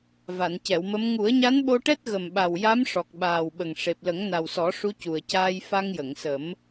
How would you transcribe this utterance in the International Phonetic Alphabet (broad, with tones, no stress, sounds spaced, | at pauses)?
v a˨˩˨ n c ɛ˨˩˨ w m ə˧˥ m ŋ u˨˩˦ ə̯ ɲ a˧˥ n ɓ o˧ ʈ ɛ˦˥ t̚ ɣ ə˨˩ m ɓ a˨˩ w j a˧˥ m ʂ ɔ˨˩ k̚ ɓ aː˨˩ w ɓ ə˨˩ ŋ ʂ e˨˩ p̚ l ə˨˩˦ ŋ n a˨˩ w s ɔ˨˩˦ ʂ u˧˥ c u˨˩ ə̯ c aː˧ j f a˧ ŋ j ə˨˩˨ ŋ s ə˨˩˦ m